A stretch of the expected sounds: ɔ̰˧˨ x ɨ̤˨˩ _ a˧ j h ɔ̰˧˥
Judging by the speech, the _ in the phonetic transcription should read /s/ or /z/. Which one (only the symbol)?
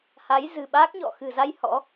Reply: z